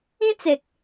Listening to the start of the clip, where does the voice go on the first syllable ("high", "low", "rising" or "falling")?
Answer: high